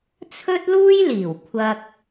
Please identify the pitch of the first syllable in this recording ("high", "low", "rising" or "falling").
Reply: high